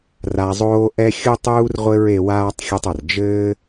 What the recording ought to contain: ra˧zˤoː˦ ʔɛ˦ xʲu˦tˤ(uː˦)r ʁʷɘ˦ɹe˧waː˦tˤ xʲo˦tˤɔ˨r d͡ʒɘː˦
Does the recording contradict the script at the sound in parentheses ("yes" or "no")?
no